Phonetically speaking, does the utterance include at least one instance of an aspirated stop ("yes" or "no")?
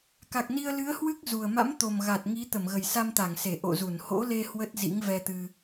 no